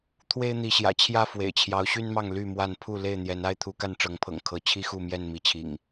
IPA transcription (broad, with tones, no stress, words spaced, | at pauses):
t̪ʰwe˦ɪ̯n̪i˨˦ɕjä̰˨˩t͡ɕʰjä˦ fwḛ˨˩ɪ̯t͡ɕʰjɑ˨˦ʊ̯ɕy˦nmɑ˥˨ŋ ly˥˨ mwa˥˨n pʰu˥˨ le˥˨ɪ̯n̪jɛ˨˦na˦ɪ̯ t̪ʰu˨˦ka˥˨nʈ͡ʂɤ˨˦ŋpʰɤ̰˨˩ŋ kʰɤ˨˦t͡ɕʰi˦xu˥˨mjɛ˥˨n mi˨˦t͡ɕʰḭ˨˩ŋ